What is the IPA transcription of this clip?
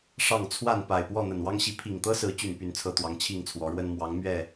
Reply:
ʂ ɑ˥˨ ŋ t͡sʰ w a˥˨ n p a˨˩ ɪ̯ p w ɔ˥˨ n̪ ə˨˩ n w ɑ˦ ŋ ɕ i˨˦ pʰ i˨˩ ŋ t̪ ɤ˦ s ɹ̩˨˦ t͡ɕ y˨˩ n p y˥˨ n t͡sʰ ɤ˥˨ t̪ w ɑ˨˦ ŋ t͡ɕʰ i˥˨ ŋ t͡sʰ w ɔ˨˦ ɻ w ə˦ n m w ɑ˨˦ ŋ m ɥ ɛ˥˨

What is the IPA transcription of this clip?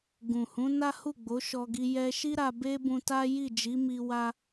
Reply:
ɡ ũ˨ h ũ˨˦ n a˦ h u˦˨ ɡ͡b o˨˦ ʃ ɔ˧ ɡ i˧ j ɛ˧ ʃ i˦ ɾ a˧ b e˦ b ũ˧ t a˦ j i˦˨ d͡ʒ i˨˦ m i˧ w a˦

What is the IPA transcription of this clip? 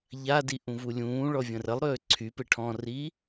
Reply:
ʎ a d i ʔ ũ v u lʲ ũː ɭ ɔ vʲ ə̃ r ə lˠ ɾ øː ǀʰ y p e ʈʰ ɔ̃ r i

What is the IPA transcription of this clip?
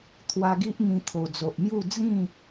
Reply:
t̪ʰ w a˧ ɡ i˦ ʔ ŋ ĩ˧ t̪ʰ o˨˩ d͡z o˨ ʔ m j u˥˧ d͡z ĩ˥˧

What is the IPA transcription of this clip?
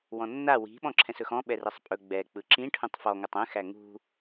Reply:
w ɔ̃ nː a w i̤ ɓ ɔ̃ ǁʰ ɛ̃ s ɵ x ɔ̃ ɓ ɛ r ɛ sˤ pʼ ɵ ɡ͡b ɛ k͡p ɯ ǁ ĩ ʈʰ ũ tˤ f ɔ ŋ ɵ tˤ ɛ̃ x æ ŋ ṳ

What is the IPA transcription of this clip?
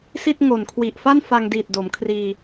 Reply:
s i˥˩ t̚ ŋ o˨˩ n kʰ w i˨˩ ʔ f a˥˩ n f a˧ ŋ d iː˨˩ t̚ d o˩˦ m kʰ r iː˧

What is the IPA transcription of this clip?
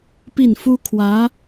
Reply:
p i˥˩ n f u˥ kʰ w ä˧˥

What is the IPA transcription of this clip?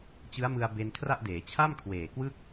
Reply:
t͡ɕ ɯ˦˥ a̯ m ɯ˧ a̯ b e˧ n kʰ r a˥˩ ʔ d eː˩˦ t͡ɕʰ a˥˩ m kʰ w eː˨˩ k w ɯ˥˩ k̚

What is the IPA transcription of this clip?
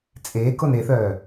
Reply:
t͡sʼ eː k o n e θ œː

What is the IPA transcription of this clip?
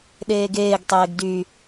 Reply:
ɗ eː ɡ eː ɡ tˤ eː ɡ d y

